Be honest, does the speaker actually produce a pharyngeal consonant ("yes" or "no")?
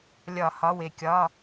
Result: no